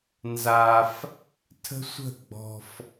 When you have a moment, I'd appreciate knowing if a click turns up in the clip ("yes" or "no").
no